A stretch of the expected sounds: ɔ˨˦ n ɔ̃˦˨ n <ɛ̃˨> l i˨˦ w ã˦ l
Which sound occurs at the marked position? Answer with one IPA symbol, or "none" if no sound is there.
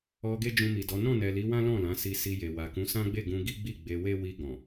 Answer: ɛ˨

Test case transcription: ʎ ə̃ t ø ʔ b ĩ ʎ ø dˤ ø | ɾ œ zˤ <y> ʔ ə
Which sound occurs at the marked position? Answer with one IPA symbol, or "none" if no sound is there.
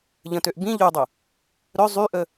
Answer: y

